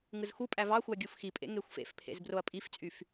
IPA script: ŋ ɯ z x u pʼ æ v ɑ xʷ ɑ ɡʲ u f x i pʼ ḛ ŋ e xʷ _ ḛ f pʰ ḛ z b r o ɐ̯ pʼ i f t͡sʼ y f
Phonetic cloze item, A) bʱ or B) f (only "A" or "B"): B